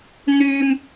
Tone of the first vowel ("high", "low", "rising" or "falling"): high